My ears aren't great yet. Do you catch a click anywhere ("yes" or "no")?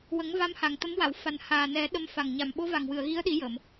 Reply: no